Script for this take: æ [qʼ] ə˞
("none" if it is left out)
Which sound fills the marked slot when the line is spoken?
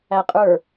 qʼ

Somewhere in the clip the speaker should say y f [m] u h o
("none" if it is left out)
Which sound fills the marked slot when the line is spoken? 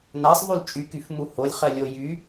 m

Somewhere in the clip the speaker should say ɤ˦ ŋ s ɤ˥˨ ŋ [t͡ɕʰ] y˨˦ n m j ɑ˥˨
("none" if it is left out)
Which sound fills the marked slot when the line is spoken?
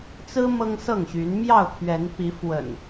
ɕ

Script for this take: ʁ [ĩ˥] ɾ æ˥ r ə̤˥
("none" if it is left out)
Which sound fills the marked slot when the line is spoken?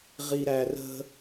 i˥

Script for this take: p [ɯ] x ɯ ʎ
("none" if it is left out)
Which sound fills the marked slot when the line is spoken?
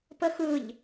ə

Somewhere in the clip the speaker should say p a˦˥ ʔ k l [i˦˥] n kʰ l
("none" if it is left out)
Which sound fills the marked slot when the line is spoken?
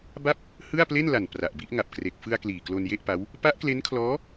e˦˥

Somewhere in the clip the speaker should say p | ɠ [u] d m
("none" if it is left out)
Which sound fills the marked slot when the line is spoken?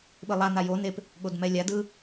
o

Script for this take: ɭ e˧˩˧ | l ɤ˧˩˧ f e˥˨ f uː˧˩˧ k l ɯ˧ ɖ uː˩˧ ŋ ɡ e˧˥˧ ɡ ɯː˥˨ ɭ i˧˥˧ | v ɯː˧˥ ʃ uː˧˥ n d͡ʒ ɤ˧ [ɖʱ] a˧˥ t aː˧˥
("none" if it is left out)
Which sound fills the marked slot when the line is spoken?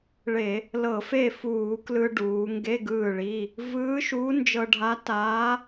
ɖʱ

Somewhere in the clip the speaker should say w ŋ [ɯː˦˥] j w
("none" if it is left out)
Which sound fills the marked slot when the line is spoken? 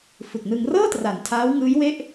ɯː˦˥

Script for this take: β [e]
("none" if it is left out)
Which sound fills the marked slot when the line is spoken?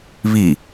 i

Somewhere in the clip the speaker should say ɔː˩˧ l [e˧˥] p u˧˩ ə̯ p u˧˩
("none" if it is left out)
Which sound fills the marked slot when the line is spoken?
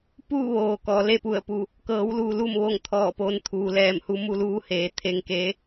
e˥˨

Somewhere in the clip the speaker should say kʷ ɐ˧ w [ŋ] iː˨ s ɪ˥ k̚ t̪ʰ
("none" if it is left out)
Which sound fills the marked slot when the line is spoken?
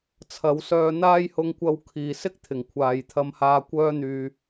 kʰ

